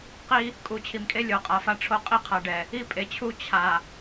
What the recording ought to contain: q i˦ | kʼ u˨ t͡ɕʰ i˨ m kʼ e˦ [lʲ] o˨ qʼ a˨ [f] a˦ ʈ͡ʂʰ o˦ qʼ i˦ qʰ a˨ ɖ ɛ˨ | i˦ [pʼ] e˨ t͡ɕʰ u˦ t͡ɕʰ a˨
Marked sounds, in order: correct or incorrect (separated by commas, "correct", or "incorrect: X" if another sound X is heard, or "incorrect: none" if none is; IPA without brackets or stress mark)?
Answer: correct, correct, correct